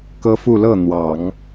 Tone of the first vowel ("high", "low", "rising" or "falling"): high